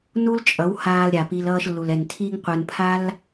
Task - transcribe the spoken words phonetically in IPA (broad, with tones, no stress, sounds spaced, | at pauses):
n u˦ l t͡ʃʼ ʌ˨˦ w h aː˧ l ɾʲ a˨ p i˧ l ʌː˧ ʃ lː u˨ l ɛ˨ n tʰ i˧ ŋ qʷ ɯ˨ n pʰ a˦ l